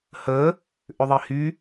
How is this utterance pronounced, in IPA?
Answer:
hə | ʔʏðˤihy

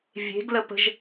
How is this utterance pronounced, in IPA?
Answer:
vʲe̤ɡ ləpə̤ʒ

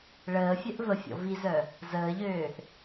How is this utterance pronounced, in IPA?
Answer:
ɭəːfʲœʔ vəfʲɔ̰ vizœ | zəːʎøːʔ

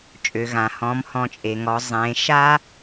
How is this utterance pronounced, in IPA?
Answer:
t͡ʃʼø˩ɣã˩hɔ̃˩˧m hɔ̃˩˧t͡ʃʼe˩ŋɔ˩˧ zˤẽː˩˧ʃa˥

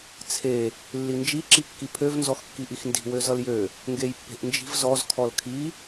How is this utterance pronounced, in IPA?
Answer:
t͡sʰe | lːind͡ʒi ǁikːipʰøv nzɔxkːiʔixndi̤ wøzʌljø | ŋɡejpːe̤ʔnd͡ʒi̤v zɔz kʰɔlkʰi

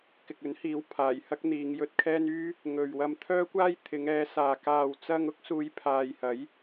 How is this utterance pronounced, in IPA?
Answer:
kɪ˨k̚ɵ˨˥nhiː˨˥w pʰaː˨˩j hɐ˥k̚n̪iː˨˧ŋjɵ˧t̚kʰɛː˥n yː˥ | ŋɵ˨ɥwɐ˧m t̪ʰœː˥kʷaː˥j t̪ʰɪ˨˧ŋɛː˨˧saː˨ kaː˨wt͡sɐ˧ŋ ʊ˥k̚suː˨˧j pʰaː˨j hɐ˨˥j

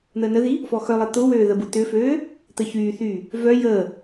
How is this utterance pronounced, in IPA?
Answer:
n̪əːnəði | fɔxœlˠɐ t̪ʊwøː ðəbut̪ʏføː | t̪əçyːθyː | vœ jəː

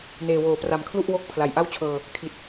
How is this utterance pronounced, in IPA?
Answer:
neː˨˩woː˩˦pra˨˩mkʰlu˥˩ʔ wo˦˥k̚ pʰla˨˩jʔa˥˩wt͡ɕʰɤː˧ | kʰi˨˩t̚

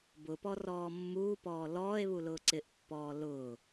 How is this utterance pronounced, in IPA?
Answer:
bʊpɔrɔː mːuːpɔː lɔːe̯βulʊː ǀɪʔpːɔː lʊː

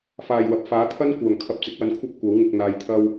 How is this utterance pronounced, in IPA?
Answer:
faː˨˩jwɐ˨p̚ faː˨˥t̪ʰɐ˥n kʷœː˨˩ŋ kʰɐ˧p̚t͡sɪ˨˥k̚wɐ˧nkʷʰɐ˥p̚ kʷɐ˨˥wŋɪ˧k̚ n̪aː˨jt̪ʰɐ˧w

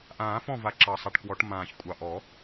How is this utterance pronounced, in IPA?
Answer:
ʔãː˨˩˦fɔ̃˥˨va˨˩ ǁɑ˨˩sˤa˨˩ʈkwɔ˨˩˦ʈ mãː˨˩ç kʷʼɑ˨˩ʔɔ˨˩˦

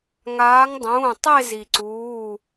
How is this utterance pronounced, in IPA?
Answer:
ŋaː˨˦ŋ dˤũː˩˧˩ tˤe˥˧zi˩ǀuː˩˧˩

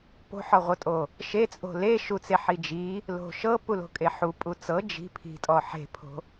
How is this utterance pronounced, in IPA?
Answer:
po̤ħɔʁʷɤtʼo | ʃet͡sʼo̤ leʃut͡se ħid͡ʒi | lo̤ʃɤ pulo̤kʼeħu pʼut͡sɤ d͡ʒi̤ pʰi̤tʼɔ ħe̤pʰo̤

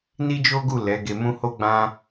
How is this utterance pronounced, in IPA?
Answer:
ni˦d͡ʒo˦ɡu˦˨ lɛ˨˦ɡe˧mũ˦ ho˦ɡ͡bã˦

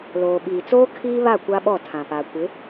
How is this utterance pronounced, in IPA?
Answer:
loː˨ɓiː˨t͡soː˦ kʰiː˦βa˦˨ kʷa˦ɓɔ˦˨tʰã˨pa˨ kʷɪ˨˦

